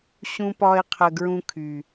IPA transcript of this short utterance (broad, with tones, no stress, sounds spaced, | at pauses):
ɕ ũ˦ p ɒ˦ e̯ qʰ ə˧ ɡ ɹ ũ˧ kʰ y˨